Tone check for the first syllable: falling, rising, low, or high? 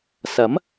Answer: rising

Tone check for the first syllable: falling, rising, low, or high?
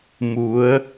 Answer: rising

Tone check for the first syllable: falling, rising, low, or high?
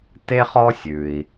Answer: high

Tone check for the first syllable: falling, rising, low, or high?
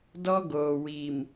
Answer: high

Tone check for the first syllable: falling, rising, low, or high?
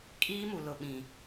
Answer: high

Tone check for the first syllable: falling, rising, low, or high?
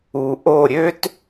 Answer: low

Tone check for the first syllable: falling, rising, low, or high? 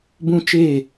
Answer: high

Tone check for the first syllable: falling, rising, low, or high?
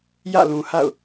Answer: falling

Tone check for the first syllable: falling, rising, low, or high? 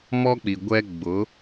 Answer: high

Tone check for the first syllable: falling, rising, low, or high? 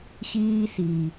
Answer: high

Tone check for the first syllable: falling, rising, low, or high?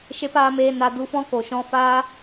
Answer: high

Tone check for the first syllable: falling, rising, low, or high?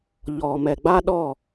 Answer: low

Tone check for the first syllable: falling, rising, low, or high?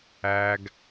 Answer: low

